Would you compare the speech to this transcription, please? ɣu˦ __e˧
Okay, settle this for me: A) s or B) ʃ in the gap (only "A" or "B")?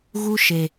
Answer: B